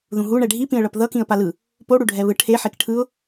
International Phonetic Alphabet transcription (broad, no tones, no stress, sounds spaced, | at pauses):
ð ũ ɦ u ɳ ɛ ɖʱ i p ĩ ə̯ ɭ ʌ p ð ʌ k ĩ ə̯ p a l ɯ | p o ɽ u ɖʱ ɛ β ɯ ʈʰ e ħ e k ʈʰ ɯ ʊ̯